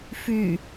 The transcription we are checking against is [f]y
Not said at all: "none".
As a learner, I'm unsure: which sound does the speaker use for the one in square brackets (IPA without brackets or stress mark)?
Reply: f